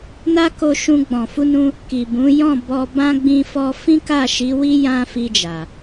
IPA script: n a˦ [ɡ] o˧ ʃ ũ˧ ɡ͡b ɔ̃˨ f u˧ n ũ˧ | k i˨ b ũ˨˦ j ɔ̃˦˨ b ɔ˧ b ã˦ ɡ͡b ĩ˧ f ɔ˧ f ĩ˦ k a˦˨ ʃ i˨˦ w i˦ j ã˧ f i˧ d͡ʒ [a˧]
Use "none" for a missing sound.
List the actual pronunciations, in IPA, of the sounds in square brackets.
k, a˨

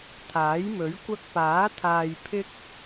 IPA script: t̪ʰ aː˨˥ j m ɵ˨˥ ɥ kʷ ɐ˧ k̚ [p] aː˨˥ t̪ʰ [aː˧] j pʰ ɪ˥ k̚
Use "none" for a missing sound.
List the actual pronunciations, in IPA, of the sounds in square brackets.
p, aː˧

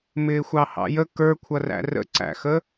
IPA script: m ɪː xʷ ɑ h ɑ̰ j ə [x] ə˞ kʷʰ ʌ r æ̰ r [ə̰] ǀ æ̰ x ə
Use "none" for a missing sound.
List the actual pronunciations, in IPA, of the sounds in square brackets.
k, ə̰

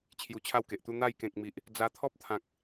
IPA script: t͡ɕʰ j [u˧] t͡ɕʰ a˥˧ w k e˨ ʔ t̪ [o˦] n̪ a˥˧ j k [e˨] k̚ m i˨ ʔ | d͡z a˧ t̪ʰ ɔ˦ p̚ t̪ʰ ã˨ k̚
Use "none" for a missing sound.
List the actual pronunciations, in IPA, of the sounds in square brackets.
u˧, u˦, ẽ˨

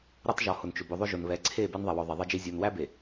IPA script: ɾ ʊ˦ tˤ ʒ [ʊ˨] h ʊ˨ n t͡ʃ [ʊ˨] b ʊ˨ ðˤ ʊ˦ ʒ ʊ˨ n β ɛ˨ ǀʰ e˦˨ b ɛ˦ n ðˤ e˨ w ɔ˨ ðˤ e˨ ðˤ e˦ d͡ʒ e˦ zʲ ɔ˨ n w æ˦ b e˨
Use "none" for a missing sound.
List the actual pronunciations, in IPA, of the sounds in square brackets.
ɔ˨, ʊ˨

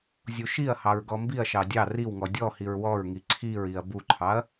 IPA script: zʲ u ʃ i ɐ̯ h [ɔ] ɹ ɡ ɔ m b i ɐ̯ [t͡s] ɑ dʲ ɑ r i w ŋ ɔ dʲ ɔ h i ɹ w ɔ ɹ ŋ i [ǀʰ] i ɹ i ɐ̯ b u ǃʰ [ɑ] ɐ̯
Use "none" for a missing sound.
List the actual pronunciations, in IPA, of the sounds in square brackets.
ɑ, ʃ, ǀʰ, ɑ

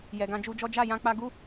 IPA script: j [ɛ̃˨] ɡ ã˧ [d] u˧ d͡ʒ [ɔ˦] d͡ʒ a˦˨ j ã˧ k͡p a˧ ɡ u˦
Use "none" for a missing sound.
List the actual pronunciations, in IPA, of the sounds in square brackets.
ɛ˨, d͡ʒ, ɔ˦

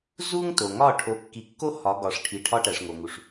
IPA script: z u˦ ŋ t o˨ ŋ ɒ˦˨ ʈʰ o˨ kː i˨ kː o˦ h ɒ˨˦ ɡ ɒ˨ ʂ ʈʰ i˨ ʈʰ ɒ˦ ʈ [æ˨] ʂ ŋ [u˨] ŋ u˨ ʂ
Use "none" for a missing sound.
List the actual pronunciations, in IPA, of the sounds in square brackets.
æ˨, o˨

